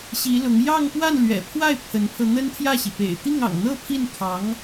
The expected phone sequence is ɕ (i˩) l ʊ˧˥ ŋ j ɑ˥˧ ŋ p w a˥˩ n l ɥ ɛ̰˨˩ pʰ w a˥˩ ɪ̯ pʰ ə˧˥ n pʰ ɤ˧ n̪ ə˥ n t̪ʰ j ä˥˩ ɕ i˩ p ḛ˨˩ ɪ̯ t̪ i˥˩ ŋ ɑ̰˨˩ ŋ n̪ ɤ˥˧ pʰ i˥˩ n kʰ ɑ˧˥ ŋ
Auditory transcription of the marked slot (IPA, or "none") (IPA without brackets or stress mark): i˧˥